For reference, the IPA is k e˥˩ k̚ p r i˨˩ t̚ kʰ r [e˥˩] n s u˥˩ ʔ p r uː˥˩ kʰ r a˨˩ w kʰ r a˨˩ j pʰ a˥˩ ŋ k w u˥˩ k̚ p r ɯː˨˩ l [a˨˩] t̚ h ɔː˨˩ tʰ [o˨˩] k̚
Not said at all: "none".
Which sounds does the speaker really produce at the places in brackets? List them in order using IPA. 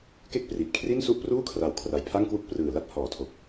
i˥˩, a˥˩, o˨˩

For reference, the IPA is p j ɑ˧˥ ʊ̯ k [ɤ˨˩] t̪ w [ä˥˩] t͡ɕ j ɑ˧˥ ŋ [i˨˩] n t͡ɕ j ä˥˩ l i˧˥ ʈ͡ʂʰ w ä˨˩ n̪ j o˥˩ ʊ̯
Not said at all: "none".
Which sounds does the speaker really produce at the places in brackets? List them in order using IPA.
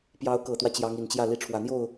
ɤ˨˩, ä˦, i˨˩

